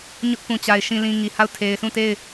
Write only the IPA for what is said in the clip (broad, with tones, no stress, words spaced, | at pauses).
ɲʊ˦ʔpũ˨t͡ɕa˨ɪ̯ ʃĩ˨lĩ˨ ŋi˨ha˦˨ʊ̯ tʰe˨ɪ̯sũ˦˨te˦˨ɪ̯